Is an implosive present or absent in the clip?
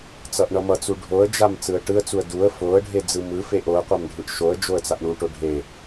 absent